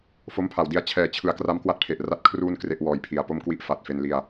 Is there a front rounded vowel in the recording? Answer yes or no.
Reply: no